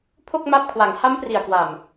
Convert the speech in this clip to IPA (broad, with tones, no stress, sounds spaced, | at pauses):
pʰ o˥˩ k̚ m a˦˥ p̚ kʰ w a˩˦ ŋ h a˦˥ m p r i˨˩ a̯ k w a˨˩ m